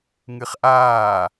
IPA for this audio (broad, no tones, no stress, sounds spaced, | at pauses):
ŋ ɨ χ ʔ aː